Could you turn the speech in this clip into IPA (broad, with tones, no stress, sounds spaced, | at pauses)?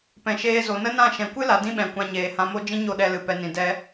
p ɛ̃˨ ʃ eː˧ z o˨ n ə˦ n ã˦˨ ʃ ɛ̃˨ kʷ ɨ˦ l a˨ d ĩ˦ ɓ ɛ̃˨ kʷ ã˧ ɲ eː˨ h ã˧ m o˦ d͡ʒ ĩ˦ ɲ o˦˨ ɗ ɛ˧ l ɨ˨ p ɛ˨ n ĩ˨ d ɛ˧